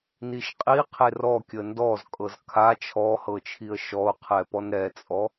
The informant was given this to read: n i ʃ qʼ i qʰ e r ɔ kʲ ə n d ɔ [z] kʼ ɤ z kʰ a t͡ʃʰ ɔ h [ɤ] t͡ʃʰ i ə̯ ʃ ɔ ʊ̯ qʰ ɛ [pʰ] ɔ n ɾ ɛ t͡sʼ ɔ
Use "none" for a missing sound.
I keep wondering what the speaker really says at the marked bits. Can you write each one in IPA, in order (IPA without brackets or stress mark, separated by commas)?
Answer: z, ɤ, p